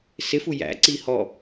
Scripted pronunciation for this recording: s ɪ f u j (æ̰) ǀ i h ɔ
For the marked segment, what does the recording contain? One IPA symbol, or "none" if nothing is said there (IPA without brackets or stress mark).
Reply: æ̰